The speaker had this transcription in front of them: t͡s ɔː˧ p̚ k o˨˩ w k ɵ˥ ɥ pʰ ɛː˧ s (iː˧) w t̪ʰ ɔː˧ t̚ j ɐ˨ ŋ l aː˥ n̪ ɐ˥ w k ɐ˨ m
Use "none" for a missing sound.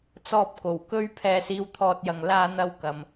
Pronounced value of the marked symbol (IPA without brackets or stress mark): iː˧